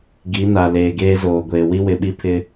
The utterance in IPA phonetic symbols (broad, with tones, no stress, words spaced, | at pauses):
ɡi˨˦na˨ leː˨ɡeː˦zoː˨ɡʷeː˨ wi˦wɪ˨ɓi˦pʰɪ˦